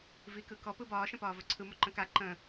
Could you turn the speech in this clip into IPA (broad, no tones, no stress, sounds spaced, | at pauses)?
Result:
v i k ɯ k ɔ p ɯ b ɒː ʃ ə̃ p ɒː v ɵ ǀʰ ɯ m ʊ ǃ ə̃ k a ǃ ə̃